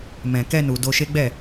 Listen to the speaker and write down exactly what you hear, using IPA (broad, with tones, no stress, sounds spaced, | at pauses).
m ɛ̃˨ k ɛ˧ n u˨ d o˧ ʃ e˦ ɡ͡b ɛ˦˨